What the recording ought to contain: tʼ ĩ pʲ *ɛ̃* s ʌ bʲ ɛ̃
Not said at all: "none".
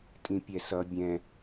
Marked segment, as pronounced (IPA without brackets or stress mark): ɛ